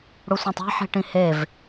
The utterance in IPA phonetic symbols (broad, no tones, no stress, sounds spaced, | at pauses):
ɽ u sʷ ẽ tˤ ɛ̤ ħ i̤ ʈ ĩ h e v